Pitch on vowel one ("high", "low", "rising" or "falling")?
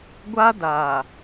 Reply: high